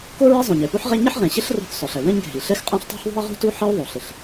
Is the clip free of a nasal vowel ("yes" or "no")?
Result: no